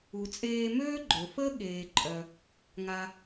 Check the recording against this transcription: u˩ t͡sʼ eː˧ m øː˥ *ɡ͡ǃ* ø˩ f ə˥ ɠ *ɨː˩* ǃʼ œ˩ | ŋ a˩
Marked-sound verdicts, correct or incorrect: correct, incorrect: eː˩

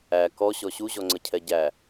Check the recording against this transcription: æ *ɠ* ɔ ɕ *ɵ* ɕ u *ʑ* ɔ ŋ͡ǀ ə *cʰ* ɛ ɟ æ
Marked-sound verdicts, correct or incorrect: incorrect: k, incorrect: ɔ, correct, correct

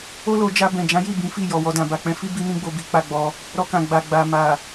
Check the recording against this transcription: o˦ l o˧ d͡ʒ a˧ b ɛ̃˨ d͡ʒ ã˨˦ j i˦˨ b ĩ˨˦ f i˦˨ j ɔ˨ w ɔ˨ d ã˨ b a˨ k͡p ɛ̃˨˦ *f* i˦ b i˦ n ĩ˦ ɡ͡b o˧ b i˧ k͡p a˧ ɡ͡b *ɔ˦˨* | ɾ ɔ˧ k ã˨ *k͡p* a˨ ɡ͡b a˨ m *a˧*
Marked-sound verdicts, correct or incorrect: correct, incorrect: ɔ˧, incorrect: ɡ͡b, incorrect: a˨

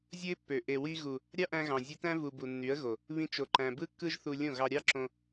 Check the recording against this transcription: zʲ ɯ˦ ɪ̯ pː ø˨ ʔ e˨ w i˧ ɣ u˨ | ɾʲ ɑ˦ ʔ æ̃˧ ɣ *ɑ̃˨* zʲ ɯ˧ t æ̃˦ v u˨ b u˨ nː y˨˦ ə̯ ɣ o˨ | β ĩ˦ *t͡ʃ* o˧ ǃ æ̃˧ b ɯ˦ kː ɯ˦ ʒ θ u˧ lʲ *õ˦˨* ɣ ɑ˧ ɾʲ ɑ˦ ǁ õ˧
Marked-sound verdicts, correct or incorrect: correct, correct, correct

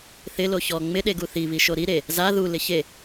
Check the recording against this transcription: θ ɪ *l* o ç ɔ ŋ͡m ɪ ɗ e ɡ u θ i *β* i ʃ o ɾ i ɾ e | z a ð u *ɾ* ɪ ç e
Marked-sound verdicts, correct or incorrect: correct, correct, incorrect: l

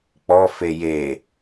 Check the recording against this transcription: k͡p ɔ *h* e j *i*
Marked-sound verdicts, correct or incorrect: incorrect: f, incorrect: e

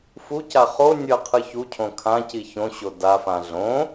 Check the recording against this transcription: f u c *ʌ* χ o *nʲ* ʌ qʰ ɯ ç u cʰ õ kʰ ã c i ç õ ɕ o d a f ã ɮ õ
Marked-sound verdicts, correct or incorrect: incorrect: a, correct

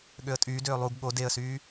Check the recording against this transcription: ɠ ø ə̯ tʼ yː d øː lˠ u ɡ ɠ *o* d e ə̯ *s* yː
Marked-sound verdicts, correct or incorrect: correct, correct

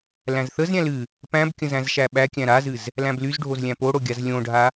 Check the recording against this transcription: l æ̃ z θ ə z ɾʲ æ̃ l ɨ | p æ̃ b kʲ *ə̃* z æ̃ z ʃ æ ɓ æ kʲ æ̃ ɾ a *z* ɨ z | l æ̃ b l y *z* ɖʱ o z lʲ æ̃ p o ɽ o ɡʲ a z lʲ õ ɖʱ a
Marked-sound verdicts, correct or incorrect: correct, correct, correct

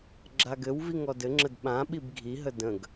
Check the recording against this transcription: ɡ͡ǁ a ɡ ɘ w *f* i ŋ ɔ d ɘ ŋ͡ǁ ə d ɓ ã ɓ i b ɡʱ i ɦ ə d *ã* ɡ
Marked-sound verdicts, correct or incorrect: incorrect: v, incorrect: ə̃

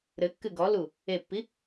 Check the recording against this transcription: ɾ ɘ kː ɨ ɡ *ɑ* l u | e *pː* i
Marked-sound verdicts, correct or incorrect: incorrect: ɔ, correct

